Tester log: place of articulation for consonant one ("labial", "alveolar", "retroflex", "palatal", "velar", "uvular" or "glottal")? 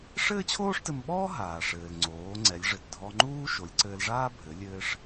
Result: retroflex